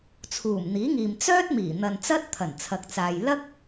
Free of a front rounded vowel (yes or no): no